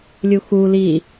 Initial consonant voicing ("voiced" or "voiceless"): voiced